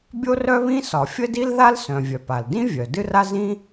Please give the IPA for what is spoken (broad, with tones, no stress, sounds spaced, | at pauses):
bʲ o˥ r œ˥ β ĩ˥ s ɒ˩ fʲ ə˥ d i˥ l ð a˥ l s œ̃˩ vʲ œ˩ p a˩ l d ĩ˥ vʲ œ˩ d ɨ˥ r a˥ z ĩ˥